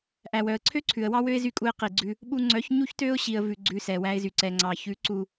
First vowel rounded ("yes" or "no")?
no